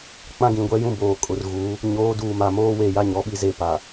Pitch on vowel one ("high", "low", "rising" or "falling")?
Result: high